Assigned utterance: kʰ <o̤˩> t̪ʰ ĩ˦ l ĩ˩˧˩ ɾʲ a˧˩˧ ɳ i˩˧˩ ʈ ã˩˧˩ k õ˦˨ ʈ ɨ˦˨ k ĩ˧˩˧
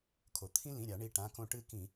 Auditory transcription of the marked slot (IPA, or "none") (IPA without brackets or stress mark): o˩